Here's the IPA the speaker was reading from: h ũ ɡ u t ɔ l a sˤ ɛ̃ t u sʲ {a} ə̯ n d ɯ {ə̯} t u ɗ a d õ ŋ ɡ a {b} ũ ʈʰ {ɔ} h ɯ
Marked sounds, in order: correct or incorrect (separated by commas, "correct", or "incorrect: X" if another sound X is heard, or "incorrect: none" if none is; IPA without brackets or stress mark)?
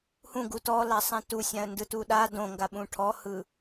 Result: incorrect: ã, incorrect: none, incorrect: ɓ, correct